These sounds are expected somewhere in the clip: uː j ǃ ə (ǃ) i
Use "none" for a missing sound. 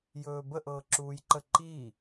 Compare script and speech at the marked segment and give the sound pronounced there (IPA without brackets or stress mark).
ǃ